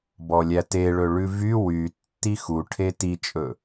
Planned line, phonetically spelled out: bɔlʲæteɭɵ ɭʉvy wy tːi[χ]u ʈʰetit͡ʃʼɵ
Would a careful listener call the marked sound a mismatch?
yes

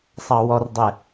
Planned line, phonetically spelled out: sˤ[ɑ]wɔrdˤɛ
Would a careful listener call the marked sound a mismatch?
no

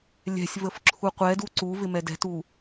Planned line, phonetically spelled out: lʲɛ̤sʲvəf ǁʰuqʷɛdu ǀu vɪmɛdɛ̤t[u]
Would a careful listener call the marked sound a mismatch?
no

